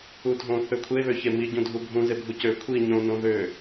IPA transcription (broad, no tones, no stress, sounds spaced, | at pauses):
u dʱ õ θ ø kʷʰ e β ø ç e m i ɟ ũ dʱ u bʱ ũ z e bʱ u c ø kʷʰ i ɲ õ n õ ð ø